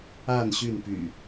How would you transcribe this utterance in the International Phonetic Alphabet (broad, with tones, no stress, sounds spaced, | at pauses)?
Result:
a˥˨ n ɕ y˥˨ n p y̰˨˩